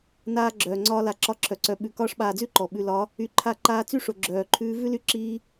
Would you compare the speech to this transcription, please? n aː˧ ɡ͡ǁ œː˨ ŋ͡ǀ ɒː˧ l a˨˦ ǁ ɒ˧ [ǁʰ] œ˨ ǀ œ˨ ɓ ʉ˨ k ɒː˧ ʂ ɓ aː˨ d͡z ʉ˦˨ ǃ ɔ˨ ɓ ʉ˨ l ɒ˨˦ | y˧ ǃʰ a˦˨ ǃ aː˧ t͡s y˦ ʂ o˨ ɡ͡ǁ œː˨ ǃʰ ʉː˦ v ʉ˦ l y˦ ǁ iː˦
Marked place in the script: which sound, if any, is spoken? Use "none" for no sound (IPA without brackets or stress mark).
ǁʰ